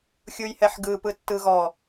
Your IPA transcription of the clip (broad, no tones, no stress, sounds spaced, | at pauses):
xʲ u j h ɛ ħ ɡ ɯ p ɯ tː ɯ ɣ ɔ